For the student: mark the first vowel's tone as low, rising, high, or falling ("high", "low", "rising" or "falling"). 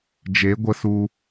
rising